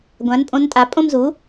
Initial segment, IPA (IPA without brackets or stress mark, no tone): ɡʷ